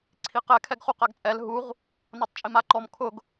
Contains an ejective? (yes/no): yes